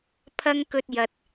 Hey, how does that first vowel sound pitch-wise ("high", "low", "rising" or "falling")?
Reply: high